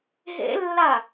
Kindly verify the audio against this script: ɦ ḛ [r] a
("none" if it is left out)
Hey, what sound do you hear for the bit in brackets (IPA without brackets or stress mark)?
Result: lː